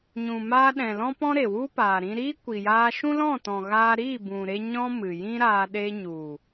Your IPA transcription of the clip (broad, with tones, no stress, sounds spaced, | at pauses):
ɲ ũ˨ m aː˧ ɗ ɛ̃˨ l ɔ̃˧ p ɔ̃˦ ɾ e˨ w u˦ p aː˨ ɾ ĩ˧ ɾ iː˦ kʷ i˨ j aː˧ ʃ ũ˦ l ɔ̃˦˨ t ɔ̃˨ ɣ aː˧ ɾ iː˦˨ b ũ˨ ɾ e˧ ɲ ɔ̃˦ m ɨ˨ j ĩ˦ ɾ aː˧ ɗ e˧ ɲ u˨